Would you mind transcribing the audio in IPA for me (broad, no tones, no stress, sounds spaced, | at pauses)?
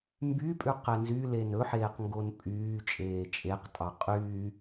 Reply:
m b y pʼ ʉ q ɛ n z y l e n ɵ ħ eː q ŋ ɡ o n pʼ yː t͡ʃʼ eː t͡ʃʼ e q tʼ ɑ qʼ y